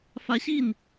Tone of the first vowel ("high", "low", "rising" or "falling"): rising